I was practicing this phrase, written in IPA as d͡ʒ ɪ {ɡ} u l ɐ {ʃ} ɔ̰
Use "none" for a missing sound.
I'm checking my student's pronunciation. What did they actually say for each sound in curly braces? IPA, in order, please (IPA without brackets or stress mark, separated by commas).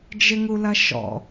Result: ŋ, ʃ